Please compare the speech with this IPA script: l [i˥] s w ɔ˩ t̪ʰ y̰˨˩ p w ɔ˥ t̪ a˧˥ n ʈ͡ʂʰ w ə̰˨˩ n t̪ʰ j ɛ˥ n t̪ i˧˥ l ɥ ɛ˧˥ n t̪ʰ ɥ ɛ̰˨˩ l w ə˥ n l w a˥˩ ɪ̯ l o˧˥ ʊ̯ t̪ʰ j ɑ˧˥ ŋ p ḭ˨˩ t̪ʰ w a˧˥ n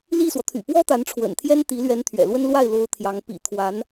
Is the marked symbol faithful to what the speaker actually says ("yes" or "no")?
no